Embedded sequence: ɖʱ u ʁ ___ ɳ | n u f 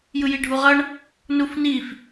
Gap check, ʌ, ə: ʌ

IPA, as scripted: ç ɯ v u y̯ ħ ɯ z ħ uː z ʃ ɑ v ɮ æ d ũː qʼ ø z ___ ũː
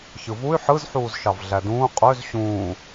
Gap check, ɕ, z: ɕ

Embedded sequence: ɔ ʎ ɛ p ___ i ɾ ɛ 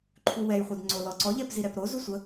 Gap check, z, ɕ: z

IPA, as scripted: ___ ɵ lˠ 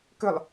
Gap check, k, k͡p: k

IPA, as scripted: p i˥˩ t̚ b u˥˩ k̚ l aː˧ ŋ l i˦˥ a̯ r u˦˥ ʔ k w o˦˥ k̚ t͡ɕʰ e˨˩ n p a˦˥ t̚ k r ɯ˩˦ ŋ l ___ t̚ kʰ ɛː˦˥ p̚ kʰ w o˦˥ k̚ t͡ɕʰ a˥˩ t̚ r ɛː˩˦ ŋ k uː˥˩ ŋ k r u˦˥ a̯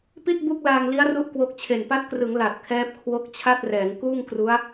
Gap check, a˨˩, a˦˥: a˨˩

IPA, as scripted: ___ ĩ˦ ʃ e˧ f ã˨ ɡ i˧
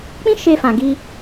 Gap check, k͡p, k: k͡p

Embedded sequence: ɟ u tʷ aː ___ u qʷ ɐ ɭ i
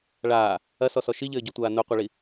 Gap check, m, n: n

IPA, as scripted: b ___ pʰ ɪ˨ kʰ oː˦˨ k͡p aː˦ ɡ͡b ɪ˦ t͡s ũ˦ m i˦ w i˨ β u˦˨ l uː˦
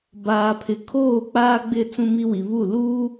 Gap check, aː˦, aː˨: aː˨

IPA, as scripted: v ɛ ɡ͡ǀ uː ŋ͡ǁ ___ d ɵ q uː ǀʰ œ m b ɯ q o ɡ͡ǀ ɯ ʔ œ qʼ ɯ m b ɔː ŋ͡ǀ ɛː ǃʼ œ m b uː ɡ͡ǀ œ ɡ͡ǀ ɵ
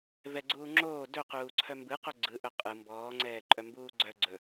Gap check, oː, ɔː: oː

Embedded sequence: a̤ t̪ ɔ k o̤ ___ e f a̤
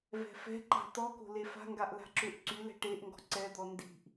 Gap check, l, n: l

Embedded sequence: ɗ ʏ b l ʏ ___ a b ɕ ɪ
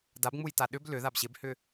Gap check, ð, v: ð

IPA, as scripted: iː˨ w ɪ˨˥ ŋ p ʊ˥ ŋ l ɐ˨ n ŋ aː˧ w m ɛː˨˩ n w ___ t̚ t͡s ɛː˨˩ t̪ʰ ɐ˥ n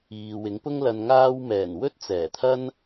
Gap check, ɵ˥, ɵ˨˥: ɵ˥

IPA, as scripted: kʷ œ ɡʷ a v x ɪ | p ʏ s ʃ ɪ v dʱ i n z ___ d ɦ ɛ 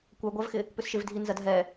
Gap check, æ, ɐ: ɐ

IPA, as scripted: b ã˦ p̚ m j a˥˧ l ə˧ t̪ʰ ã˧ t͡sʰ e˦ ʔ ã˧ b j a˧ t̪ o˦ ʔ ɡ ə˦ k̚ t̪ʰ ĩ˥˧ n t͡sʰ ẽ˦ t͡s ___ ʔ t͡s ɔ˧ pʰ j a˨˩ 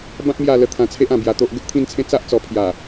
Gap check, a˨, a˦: a˦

